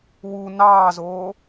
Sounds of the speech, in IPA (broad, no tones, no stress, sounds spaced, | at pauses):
w u n ɑː z oː